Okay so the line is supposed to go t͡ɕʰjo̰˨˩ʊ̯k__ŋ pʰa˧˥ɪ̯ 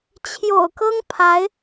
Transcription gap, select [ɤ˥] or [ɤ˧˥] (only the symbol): ɤ˥